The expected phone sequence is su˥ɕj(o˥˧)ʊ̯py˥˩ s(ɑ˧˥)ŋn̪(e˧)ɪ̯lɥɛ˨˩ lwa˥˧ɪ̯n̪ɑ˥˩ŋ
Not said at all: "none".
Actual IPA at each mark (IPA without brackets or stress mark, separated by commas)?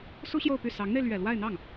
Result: o˥˧, ɑ˧˥, e˧